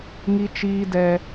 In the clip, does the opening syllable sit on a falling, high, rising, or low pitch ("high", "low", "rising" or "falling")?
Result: low